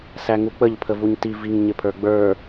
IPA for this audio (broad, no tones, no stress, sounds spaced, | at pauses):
s æ ŋ u k͡p ə ʎ pʰ ə v u ɲ t i v i ŋ ɲ ɪ pʰ ə˞ ɡ͡b ə˞